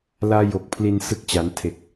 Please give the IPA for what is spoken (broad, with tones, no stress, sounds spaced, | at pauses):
l aː˦˥ j o˨˩ k̚ pʰ l i˧ n s ɯ˦˥ k̚ t͡ɕ a˩˦ n tʰ e˨˩ k̚